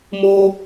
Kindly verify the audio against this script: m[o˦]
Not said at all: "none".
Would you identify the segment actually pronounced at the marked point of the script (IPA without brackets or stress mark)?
o˦